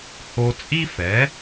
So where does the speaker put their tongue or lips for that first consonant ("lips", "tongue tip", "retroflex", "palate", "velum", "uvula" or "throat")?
throat